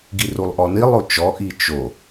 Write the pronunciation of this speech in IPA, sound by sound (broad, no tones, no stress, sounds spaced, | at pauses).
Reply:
ɡ i r u lˠ ʔ ɔ n i lˠ o t͡ʃ ɔ ʔ i t͡ʃ o